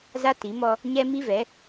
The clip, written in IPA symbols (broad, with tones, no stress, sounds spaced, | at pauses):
z a˦ t i˨˦ m ɔ˦ | ɲ ɛ˦ m i˦ v ɛ˨˦